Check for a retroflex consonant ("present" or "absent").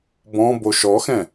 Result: absent